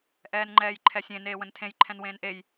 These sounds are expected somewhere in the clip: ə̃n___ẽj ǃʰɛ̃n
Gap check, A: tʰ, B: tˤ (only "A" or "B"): A